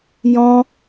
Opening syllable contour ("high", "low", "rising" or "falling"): high